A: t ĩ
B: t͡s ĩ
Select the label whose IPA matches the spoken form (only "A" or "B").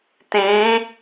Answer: A